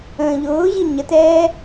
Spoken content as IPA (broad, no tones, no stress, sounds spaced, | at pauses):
ə̃ː ʎ ʊː ʑ i ɲ ə t ɛː